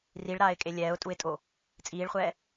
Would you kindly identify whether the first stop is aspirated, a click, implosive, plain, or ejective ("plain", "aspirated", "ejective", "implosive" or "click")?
ejective